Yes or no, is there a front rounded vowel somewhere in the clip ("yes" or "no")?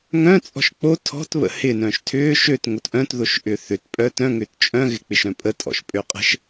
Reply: yes